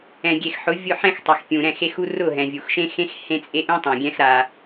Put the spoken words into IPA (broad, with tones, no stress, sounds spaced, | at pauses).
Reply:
ɛ̃˨ ɡʲ e˨ x ħ ʊ˨˦ vʲ ʊ˦˨ ħ ɛ̃˦ x tˤ ɛ˨ x pʲ ũ˨ ɾ ɛ̃˦˨ x e˦ x u˦ r ʊ˦˨ ɦ ɛ̃˨ vʲ u˨ x ʃ ẽ˦ x ẽ˦ x h ẽ˦ t͡sʼ e˦ ʔ ũ˦ tˤ ɛ̃˨ ɡʲ ɛ̃˦ x ɾ a˦